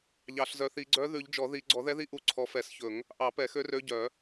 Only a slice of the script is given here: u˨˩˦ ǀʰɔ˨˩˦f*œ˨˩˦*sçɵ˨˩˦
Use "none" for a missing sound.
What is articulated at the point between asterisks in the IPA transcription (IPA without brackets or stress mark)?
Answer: ɛ˨˩˦